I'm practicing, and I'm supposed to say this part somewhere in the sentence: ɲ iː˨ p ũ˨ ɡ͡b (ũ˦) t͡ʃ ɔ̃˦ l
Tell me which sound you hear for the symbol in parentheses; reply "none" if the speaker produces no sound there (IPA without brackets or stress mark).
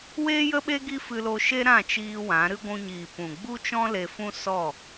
u˦